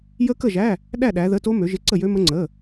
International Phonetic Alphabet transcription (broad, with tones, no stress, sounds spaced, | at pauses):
j ə˦˥ k ə˥˨ ʒ æ˧˥˧ | ɗ æ˥˨ ɗ æ˨˦ ð ə˧˥˧ t o˦˥ m ø˨˦ ʒ ɪ˧˥˧ ǀ ə˥˨ j ø˦˥ m ə˦˥ ŋ͡ǀ ə˧˥˧